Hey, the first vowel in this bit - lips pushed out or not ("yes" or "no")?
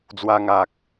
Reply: no